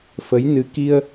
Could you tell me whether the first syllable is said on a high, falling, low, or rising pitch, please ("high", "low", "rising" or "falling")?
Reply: rising